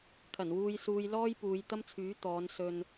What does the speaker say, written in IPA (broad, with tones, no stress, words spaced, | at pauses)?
kʰɐ˨˩nwuː˧jsuː˧j lɔː˥jpuː˨˧jt̪ɐ˥mt͡sʰyː˨˥ t̪ɔː˨˧n sɵ˨n